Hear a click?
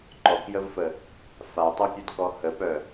yes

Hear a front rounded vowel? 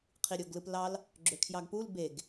yes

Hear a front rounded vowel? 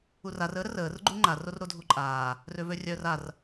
yes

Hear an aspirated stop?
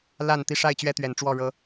no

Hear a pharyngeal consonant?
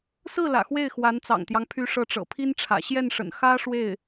no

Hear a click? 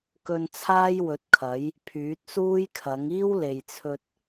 no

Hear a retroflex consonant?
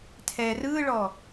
yes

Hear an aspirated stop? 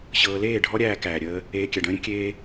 no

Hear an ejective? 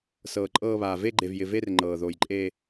yes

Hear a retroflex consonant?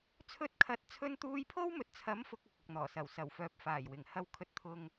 no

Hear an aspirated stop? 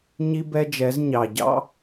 no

